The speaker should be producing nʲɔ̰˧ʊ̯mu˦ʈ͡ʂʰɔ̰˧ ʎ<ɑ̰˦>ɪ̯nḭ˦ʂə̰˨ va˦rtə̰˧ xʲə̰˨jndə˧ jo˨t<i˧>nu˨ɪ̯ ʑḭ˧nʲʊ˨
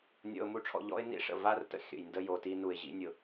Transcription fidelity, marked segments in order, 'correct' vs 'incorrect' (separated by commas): incorrect, correct